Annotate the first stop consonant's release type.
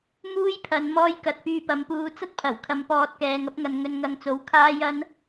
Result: aspirated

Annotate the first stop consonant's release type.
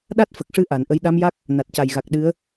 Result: implosive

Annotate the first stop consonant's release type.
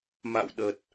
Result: implosive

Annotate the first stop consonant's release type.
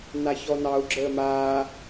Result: click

